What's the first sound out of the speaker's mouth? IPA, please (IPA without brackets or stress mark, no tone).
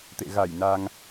t̪